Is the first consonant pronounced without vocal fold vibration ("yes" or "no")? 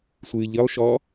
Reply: yes